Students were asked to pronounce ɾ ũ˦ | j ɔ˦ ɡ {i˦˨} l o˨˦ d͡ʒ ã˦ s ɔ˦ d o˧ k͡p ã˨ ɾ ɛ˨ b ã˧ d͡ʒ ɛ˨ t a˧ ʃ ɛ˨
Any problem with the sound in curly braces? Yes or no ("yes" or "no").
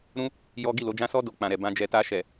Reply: no